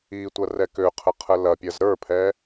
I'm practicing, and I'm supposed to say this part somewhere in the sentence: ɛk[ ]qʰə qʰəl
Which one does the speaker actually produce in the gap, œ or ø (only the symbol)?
ø